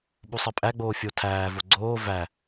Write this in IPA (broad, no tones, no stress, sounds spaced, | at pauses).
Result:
ɓ u sˤ ɜ pʼ æ ɡ͡b oː fʲ o tʰ æː v o ɡ͡ǀ oː v æ